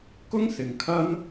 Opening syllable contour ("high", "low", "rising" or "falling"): high